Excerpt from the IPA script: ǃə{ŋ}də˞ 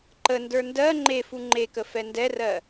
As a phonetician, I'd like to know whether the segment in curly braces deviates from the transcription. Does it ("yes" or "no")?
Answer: yes